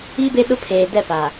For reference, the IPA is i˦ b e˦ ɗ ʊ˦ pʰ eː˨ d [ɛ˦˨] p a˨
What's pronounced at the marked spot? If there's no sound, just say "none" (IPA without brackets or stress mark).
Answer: ɛ˦˨